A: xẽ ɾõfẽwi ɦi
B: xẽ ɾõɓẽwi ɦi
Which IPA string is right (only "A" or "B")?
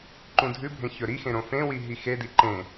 A